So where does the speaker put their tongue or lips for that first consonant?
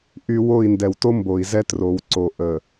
throat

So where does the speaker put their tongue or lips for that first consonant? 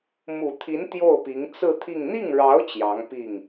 lips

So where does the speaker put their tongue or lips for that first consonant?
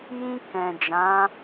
palate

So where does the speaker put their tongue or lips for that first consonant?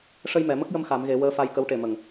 retroflex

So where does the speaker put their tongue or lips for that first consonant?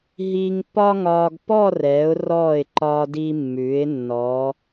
throat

